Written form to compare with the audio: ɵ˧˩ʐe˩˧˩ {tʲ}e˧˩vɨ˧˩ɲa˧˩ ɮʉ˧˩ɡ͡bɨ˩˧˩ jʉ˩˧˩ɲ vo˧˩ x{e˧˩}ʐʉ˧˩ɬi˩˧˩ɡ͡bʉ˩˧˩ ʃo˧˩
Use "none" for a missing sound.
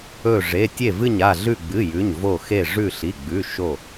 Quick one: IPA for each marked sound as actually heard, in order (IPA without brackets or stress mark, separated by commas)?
tʲ, e˧˩